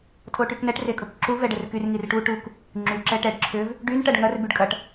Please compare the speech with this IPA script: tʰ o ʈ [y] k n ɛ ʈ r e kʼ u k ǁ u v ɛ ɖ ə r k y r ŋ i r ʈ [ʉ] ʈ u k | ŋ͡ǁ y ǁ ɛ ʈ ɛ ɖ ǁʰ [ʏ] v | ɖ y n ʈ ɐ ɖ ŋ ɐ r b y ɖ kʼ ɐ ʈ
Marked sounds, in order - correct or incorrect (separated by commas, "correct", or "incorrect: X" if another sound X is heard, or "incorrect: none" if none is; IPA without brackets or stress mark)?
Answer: correct, incorrect: u, correct